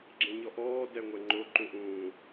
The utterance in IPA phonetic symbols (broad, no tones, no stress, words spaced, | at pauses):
ɡ͡ǁẽɲɔʔɔː dɛŋʷɛŋ͡ǃo ǃũʔũː